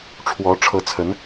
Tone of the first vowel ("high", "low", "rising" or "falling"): rising